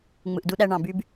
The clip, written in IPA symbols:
ŋ͡m ɯ˨ ʔ d u˧ ɗ æ˧ ɳ ɑ̃˨ b y˧ b

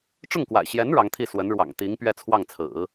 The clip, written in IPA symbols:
ʈ͡ʂ ʊ˥˩ ŋ k w a̰˨˩ ɪ̯ ɕ j ɛ˧˥ n ɻ ɑ˧˥ ŋ t̪ʰ i˥˩ s w ə˧˥ n ɻ w ɑ̰˨˩ ŋ t̪ i˧˥ ŋ p ɥ ɛ˥˧ t͡sʰ w ɑ˥˩ ŋ t͡sʰ ɹ̩˨˩˦

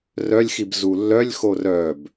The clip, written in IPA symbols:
r œ lʲ x i b z u lː œ lʲ x o r œ b

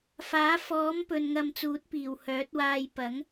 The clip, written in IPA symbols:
f aː˨˥ f ɔː˨˥ m p ɵ˨ n ŋ ɐ˧ m t͡s uː˨˥ t̚ p iː˨˩ w h œː˨˥ t̚ w aː˧ j p ɐ˨˥ ŋ

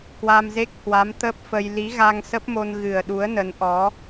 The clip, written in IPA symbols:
k w a˧ m z e˦˥ k̚ h w a˨˦ m t̪ ə˦˥ p̚ f ə˧ j l i˨˦ ɣ a˧ ŋ s ə˦˥ p̚ m o˧ n ɣ ɨ˨˩ ə̯ ɗ u˨˦ ə̯ n ə˨˦ n ʔ ɔ˨˦

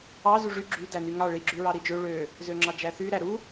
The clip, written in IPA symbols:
ɑ z u ʐ y ɡ͡ǁ y d æ n y ŋ ɑ ɭ i ɡ͡ǁ y ɹ ɑ ɾ i d͡ʒ ø ɭ ø | z ø ŋ͡ǁ ɑ d͡ʒ æ θ y ɾ æ ɾ u

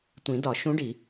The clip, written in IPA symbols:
tʷ ĩ˨˩˦ d ɒ˨˩˦ ʃ ũ˧˥ ɖ i˨˩˦

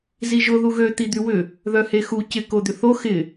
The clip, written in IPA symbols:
z i ʒ ʊ ð u ɣ ø t̪ i d̪ y w ʏ | ð œ h e x u c ɪ k o d̪ ʏ θ o x ɪ

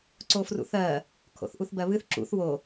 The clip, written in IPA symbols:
ǀ o f r ṵ θ ɜ | kʰ o̰ θ ʔ u θ b ɜ β ɨ θ ǁ ṵ θ w o

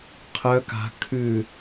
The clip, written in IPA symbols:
qʰ œ k a̤ kʰ ʉ

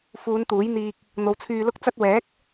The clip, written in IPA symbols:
f uː˨˧ n t̪ uː˨˥ j n̪ iː˧ k̚ | n̪ o˨˧ w t͡sʰ yː˧ l ʊ˥ k̚ t͡s ɐ˥ t̚ w ɛː˨˥ k̚

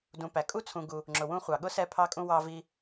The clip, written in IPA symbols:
d ũ˨ p æ˩ kʼ u˥ t͡sʰ ũ˨ ɡ u˨ | ŋ͡ǁ ʊ˩ w ũ˦ χʷ ɑ˩ ɠ ʊ˥ s ɛ˦ pʰ ɑ˦ kʼ ũ˦ w ɑ˦ v i˦

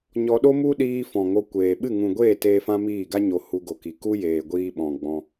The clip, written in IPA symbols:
ɲ ɔ˧ ɗ o˦ m u˦ ɗ iː˧ f ɔ̃˨ ŋ o˧ kʷ eː˨ ɓ ɨ˦˨ ŋ ũ˨ ɡʷ eː˦˨ t eː˧ f ã˦ m iː˦˨ ɡ a˦ ɲ o˨ h u˧ ɡ o˨ k i˨ k u˦ j eː˨ ɡʷ iː˧ ɓ ɔ̃˨ ɡ͡b ɔ̃˧

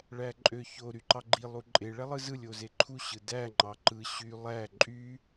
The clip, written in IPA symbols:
ɭ æ ǃʼ ø ç o ɾ y ǃ ɑ ɡ͡ǃ i lˠ u ǃʼ e ɭ æ lˠ ɯ z ɯ lʲ o z e ǃʰ u ɕ ɯ d æ ŋ͡ǃ ɑ ǃ ɯ ɕ y lˠ æ ǃʼ y

